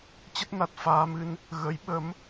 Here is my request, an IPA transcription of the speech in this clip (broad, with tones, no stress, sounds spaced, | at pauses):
t͡ɕ ə˦˥ t̚ n a˨˩ t̚ f aː˧ m ɨ˧ n | ɣ ə˨˦ j ɓ ə˨˦ m